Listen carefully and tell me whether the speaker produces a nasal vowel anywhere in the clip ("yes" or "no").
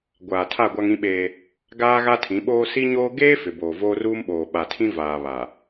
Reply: yes